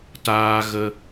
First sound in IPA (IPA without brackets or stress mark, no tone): t